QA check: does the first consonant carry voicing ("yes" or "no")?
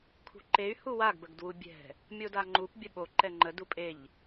no